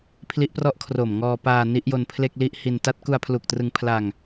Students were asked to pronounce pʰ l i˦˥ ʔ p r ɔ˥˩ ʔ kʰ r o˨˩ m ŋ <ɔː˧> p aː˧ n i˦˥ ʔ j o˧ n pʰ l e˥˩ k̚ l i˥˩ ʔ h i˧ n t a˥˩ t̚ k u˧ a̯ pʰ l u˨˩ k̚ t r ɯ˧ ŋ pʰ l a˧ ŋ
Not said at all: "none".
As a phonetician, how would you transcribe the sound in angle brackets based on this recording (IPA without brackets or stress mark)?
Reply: ɔː˧